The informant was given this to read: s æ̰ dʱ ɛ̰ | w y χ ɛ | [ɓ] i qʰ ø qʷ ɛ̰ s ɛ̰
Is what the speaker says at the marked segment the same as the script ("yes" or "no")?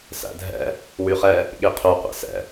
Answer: no